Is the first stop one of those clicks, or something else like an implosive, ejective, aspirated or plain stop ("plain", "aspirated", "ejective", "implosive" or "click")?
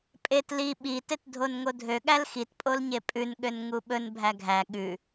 ejective